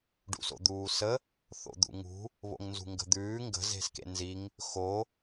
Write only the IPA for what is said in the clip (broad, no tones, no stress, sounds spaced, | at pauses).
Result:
ɖ ṵ s o̰ d̪ uː s ə | θ o̰ d̪ ṵ ŋ ṳ | β o̰ ŋ n z ṳ ŋ ɡ ə̤ d̪ ʉː ŋ ɡ ə̤ z e̤ s k ḛ n z i ŋ | x o